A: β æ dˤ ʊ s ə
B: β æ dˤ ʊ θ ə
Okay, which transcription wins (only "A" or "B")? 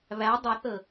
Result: B